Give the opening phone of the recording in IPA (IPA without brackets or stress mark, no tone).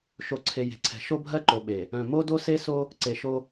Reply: ʃ